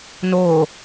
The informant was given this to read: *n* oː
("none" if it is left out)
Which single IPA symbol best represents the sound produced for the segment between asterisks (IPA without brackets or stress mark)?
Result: n